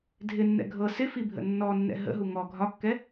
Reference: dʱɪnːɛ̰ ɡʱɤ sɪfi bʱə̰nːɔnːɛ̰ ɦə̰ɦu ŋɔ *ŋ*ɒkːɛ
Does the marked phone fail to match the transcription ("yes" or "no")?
yes